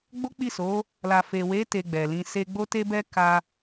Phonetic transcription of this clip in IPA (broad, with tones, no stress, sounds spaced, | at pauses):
ɡ͡b o˦ k͡p i˦˨ s o˨˦ | l a˨ f e˨ w e˨˦ t e˧ ɡ͡b ɛ˨ l ĩ˧ s e˦ ɡ͡b o˦ t e˦ b ɛ˦ k a˧